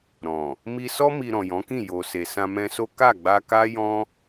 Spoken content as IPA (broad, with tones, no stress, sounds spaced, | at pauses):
ɾ ɔ̃˨ | m i˧ s ɔ˦ m i˧ ɾ ɔ̃˨ j ɔ̃˨˦ k ĩ˦˨ j o˨ s e˨ s ã˧ m ɛ̃˧ s o˦ k a˦˨ ɡ͡b a˧ k a˦ j ɔ̃˦